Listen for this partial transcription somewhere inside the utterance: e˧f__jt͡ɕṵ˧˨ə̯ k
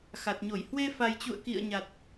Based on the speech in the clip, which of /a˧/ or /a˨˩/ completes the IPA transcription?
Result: a˨˩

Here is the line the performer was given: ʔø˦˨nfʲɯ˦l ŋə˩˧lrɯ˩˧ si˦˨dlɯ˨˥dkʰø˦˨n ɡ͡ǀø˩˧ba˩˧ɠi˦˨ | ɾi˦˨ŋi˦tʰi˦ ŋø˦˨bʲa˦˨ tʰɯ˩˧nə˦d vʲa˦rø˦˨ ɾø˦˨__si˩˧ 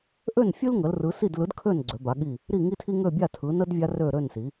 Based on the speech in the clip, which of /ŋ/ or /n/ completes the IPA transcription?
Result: n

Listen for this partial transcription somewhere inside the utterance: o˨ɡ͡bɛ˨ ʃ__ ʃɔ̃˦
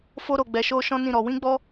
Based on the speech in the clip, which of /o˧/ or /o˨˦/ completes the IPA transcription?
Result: o˧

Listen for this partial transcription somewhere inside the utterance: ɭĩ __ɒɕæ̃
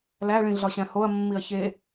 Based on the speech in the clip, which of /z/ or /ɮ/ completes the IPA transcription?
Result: ɮ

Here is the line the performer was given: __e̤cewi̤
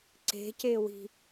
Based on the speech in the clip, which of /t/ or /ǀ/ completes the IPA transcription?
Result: ǀ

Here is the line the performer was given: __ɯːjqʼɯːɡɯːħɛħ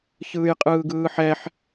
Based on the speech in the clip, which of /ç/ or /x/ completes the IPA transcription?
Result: ç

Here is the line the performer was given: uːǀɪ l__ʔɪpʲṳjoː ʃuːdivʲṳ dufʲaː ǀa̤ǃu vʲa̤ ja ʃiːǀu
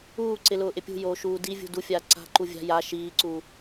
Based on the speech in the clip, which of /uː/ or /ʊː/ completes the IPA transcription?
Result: ʊː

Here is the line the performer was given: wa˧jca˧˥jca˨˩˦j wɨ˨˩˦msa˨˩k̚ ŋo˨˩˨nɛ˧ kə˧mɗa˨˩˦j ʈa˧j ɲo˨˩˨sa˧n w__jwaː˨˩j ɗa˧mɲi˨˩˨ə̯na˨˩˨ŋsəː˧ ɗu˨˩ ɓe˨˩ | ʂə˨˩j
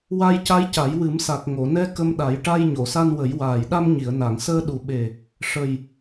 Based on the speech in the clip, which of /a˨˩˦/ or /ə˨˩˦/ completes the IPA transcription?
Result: ə˨˩˦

